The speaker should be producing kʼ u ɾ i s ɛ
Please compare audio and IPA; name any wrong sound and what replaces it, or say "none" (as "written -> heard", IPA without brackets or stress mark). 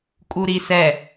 none